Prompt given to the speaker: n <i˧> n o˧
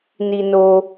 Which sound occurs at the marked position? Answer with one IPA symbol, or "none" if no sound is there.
i˧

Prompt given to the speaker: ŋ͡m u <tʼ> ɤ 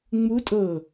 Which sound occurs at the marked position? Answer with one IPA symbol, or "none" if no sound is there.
tʼ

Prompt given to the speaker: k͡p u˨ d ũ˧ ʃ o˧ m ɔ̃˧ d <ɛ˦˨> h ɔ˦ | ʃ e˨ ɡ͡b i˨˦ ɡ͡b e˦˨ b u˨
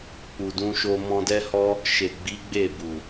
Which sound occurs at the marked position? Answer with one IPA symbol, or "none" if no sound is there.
ɛ˦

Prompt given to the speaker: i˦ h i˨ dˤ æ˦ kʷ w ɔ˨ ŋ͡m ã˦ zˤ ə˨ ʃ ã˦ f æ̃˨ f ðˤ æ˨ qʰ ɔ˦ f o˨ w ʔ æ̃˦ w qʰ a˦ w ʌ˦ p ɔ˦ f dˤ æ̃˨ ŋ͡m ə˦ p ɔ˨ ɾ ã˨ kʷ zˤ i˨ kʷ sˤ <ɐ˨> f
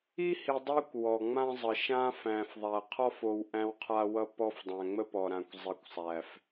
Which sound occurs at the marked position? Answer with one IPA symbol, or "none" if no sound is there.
æ˨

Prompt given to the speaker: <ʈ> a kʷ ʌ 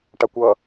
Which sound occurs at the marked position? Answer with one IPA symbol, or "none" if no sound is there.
ʈ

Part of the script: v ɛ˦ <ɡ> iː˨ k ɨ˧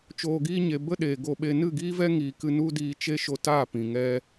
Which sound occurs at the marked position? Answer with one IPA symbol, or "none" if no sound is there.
ŋ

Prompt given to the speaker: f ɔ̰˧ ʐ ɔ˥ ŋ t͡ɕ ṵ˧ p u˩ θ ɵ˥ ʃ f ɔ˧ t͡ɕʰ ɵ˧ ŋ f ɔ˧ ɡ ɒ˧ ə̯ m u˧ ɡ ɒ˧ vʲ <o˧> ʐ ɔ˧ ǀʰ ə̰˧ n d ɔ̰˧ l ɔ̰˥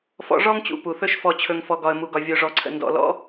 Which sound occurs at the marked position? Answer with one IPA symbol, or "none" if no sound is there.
o˧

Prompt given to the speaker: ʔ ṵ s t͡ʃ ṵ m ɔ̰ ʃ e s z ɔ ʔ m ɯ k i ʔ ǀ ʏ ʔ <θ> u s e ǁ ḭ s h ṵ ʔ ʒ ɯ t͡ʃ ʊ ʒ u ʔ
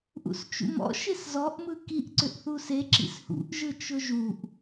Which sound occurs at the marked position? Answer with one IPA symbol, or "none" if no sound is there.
θ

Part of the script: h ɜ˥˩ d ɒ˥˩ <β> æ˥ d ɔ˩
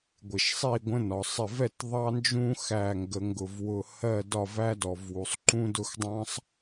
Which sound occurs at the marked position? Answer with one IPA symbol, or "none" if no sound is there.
v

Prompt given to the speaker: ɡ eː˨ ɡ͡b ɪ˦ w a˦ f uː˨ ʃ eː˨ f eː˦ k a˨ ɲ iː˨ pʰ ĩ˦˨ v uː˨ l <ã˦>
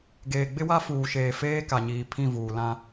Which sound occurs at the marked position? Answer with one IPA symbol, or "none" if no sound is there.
ã˦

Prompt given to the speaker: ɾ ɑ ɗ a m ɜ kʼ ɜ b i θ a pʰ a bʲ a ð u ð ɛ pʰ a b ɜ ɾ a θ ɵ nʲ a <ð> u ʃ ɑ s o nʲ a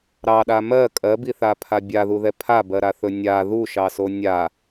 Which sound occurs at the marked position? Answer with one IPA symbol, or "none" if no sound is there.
ð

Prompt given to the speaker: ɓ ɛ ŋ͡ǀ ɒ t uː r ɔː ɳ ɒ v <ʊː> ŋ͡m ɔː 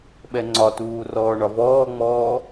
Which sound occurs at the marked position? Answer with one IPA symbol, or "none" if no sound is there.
ɔː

